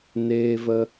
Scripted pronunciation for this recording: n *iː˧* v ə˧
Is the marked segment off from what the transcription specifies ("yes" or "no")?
yes